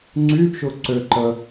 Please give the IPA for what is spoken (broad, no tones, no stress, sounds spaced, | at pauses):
ŋ͡ǀ y t͡ʃ ʊ ǀ ø ǃ ə